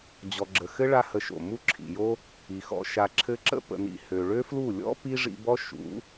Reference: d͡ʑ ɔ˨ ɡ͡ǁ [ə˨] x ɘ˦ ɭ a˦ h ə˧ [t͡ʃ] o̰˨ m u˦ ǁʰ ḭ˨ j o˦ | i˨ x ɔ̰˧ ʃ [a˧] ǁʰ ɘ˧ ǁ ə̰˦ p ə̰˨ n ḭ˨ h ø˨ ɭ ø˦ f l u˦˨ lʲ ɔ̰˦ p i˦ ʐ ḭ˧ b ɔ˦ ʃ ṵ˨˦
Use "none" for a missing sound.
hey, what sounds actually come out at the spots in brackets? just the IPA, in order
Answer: ə˨, ʃ, a˨

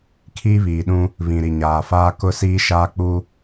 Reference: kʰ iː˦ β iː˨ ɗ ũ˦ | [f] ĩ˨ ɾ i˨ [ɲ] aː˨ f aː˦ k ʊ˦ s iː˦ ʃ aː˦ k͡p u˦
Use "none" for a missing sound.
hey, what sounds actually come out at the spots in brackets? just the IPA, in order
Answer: β, ɲ

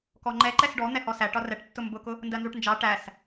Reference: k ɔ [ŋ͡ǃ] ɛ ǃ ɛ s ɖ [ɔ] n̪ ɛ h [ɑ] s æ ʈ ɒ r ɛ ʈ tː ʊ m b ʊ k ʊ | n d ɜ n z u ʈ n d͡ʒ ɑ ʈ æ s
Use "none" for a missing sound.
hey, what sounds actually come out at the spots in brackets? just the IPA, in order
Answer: ŋ͡ǃ, ɔ, ɔ

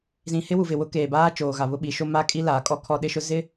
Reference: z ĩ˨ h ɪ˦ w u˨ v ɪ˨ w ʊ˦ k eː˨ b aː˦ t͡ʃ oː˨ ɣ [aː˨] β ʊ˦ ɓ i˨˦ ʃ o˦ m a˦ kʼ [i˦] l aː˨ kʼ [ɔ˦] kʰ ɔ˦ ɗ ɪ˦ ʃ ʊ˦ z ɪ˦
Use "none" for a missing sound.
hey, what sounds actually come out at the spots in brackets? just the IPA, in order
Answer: a˨, i˦, ɔ˦

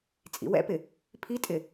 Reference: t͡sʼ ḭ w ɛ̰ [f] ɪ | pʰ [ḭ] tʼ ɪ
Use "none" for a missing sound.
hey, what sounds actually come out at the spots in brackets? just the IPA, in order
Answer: p, i

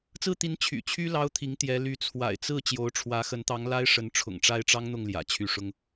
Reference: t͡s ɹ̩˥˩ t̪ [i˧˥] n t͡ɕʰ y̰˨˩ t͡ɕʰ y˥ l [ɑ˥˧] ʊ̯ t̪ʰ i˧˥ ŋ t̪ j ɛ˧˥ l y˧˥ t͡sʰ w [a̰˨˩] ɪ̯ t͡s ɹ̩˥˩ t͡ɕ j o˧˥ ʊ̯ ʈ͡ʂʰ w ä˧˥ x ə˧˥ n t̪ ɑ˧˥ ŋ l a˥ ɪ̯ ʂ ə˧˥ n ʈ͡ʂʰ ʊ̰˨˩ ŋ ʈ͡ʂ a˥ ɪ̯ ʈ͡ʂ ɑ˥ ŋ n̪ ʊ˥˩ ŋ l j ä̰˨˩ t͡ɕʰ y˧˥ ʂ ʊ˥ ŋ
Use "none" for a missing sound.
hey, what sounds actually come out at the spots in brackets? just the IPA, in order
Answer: i˧˥, ɑ˥, a̰˨˩

